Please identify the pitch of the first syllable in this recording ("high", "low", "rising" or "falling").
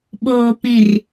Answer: low